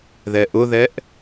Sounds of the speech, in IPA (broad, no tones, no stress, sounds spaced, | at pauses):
ð ɛ ʔ ʊ ð ɛ ʔ